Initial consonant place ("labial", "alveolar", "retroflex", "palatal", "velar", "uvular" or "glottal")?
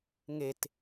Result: velar